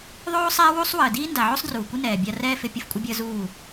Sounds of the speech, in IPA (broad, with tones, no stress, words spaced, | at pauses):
ðˤoː˦ sˤɛː˦wu˦sˤwəː˨ diː˦nda˨ʕo˦sˤ druː˨kʷɪ˦nɛː˨bʲa˧ rɛː˦fɪ˧ pʲə˦fkʷʼɪ˦bʲəː˦ zuː˦˨